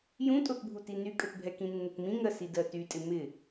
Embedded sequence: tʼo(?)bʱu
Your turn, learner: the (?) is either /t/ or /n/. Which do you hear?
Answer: t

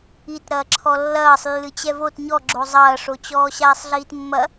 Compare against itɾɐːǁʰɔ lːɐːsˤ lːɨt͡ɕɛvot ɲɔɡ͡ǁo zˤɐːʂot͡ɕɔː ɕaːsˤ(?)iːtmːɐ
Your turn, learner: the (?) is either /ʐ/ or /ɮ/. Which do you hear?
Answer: ɮ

